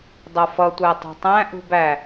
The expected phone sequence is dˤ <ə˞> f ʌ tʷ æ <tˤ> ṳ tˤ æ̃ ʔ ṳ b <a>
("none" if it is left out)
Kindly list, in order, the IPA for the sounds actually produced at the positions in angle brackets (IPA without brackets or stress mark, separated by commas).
ʌ, tˤ, æ